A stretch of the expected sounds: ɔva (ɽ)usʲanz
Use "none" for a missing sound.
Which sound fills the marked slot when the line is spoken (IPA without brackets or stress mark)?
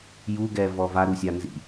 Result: ɾ